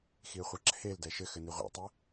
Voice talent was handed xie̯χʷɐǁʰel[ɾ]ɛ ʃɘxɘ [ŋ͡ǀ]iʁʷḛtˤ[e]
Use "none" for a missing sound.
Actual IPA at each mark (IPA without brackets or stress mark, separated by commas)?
d, n, e